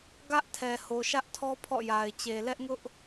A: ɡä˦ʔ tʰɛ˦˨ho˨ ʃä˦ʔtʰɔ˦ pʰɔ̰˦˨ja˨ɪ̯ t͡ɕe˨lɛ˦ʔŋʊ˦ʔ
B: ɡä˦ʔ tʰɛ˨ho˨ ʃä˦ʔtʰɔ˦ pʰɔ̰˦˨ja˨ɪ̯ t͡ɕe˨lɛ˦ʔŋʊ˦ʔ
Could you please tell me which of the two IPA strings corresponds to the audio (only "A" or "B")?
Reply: B